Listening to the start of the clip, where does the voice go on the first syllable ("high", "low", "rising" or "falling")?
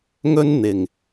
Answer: high